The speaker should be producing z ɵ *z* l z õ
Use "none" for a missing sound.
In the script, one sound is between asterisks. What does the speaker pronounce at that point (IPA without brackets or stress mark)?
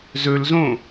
none